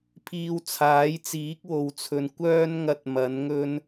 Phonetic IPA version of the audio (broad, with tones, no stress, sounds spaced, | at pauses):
pʰ iː˧ w t͡sʰ aː˨˥ j t͡s iː˨˥ k̚ w o˨ w t͡sʰ ɵ˨ n kʷ œː˧ n ŋ ɐ˨ t̚ m ɐ˨˥ n ŋ ɵ˥ n